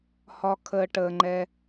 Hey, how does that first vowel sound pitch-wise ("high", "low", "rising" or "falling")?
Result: low